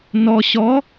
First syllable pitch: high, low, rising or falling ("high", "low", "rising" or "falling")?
low